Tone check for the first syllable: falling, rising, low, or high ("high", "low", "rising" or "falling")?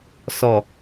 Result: low